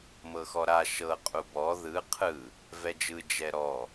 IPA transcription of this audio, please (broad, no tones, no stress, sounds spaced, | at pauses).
m ɤ x ɔ ɾ a ʃ ɤ qʼ u b ɔ ð ɯ qʰ ɯ | v ɛ d͡ʒ ɯ d͡ʒ ɛ ɾ ɔ